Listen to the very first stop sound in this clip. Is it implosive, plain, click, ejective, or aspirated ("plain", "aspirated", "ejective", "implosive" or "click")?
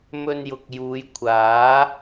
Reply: plain